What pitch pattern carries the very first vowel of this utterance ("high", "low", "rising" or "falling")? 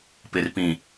low